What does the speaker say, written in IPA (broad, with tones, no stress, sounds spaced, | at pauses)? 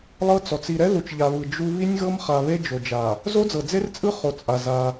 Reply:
lˠ ɤ˦ t͡s ɔ˨ t͡s i˨ ɾ ɛ˦ ð u˨ t͡ʃ ʎ a˨ β ɯ˨ d͡ʒ u˦ β i˦ nʲ ɣ ɤ˦ m χ a˨ β e˦ d͡ʒ o˨ d͡ʒ a˨ | z o˦ d͡z ɤ˨ d͡z e˦ r t͡sʼ ɯ˦ χ o˨ t͡sʼ a˨ z a˦